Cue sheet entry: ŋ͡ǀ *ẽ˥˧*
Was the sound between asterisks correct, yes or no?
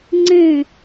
yes